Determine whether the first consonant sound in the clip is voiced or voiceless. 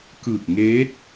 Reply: voiceless